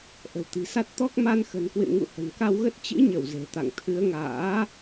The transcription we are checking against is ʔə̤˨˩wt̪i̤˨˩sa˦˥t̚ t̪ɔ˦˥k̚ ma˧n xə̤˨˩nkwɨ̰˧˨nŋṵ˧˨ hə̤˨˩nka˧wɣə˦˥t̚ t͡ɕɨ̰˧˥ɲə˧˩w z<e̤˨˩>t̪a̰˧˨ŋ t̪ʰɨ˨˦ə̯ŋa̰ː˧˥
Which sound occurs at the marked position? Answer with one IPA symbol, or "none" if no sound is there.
e̤˨˩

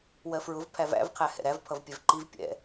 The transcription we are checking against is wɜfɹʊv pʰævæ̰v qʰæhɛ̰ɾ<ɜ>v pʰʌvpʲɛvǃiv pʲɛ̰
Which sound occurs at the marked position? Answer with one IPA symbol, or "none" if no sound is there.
æ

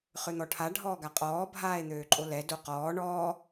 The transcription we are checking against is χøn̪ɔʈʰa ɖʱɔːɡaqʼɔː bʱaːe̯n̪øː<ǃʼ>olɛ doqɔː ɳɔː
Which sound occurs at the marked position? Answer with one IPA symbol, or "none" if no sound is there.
ǃʼ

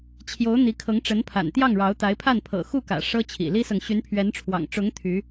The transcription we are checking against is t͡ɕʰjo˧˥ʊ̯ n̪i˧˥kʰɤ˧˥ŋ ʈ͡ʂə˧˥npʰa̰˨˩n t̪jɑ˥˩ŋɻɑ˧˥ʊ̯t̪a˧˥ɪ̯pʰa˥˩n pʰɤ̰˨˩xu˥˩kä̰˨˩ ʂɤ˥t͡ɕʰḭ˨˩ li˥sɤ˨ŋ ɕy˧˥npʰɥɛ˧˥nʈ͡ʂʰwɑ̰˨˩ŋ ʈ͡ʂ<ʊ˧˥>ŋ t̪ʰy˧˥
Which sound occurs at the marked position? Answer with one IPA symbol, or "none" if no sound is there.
ʊ˧˥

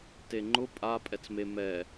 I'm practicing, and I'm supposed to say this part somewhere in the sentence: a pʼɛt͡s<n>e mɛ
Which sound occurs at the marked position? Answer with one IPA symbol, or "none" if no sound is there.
m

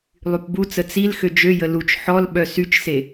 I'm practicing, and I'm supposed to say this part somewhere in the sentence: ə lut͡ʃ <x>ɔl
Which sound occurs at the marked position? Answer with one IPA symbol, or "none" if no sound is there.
ħ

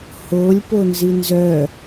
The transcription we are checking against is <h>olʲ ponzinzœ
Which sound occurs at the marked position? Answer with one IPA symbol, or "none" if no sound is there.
h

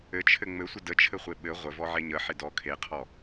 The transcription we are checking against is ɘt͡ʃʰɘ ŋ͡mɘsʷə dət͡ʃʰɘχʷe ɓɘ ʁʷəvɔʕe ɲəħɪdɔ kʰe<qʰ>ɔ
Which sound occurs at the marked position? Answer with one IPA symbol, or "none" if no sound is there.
qʰ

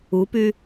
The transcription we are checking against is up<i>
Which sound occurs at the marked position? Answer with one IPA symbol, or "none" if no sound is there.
y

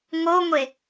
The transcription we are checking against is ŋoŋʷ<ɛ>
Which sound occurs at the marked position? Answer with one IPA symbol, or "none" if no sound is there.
e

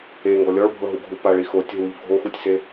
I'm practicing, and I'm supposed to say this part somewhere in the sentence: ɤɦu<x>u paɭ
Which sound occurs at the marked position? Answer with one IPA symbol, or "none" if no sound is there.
ɡʱ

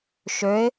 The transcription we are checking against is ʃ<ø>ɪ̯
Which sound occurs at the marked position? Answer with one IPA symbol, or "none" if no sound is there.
ø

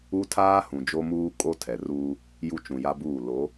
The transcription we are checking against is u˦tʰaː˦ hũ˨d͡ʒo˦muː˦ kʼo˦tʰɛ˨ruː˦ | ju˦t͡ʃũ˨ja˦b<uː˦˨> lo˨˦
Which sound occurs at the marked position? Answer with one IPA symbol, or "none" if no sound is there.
uː˦˨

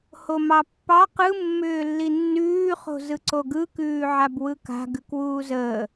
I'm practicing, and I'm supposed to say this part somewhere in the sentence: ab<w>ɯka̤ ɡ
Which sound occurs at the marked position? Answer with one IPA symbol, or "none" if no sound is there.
w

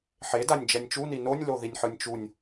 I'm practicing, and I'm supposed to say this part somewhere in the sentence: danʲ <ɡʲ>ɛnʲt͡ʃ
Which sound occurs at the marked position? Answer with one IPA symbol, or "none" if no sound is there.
d͡ʒ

